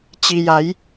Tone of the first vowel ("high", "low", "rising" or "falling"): low